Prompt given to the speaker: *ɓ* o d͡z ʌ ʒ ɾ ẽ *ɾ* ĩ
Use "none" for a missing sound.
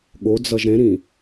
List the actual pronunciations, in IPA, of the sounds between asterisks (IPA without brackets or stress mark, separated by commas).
ɠ, ɾ